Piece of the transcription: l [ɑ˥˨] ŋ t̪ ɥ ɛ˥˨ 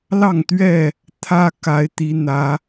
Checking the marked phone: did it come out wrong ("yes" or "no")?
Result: no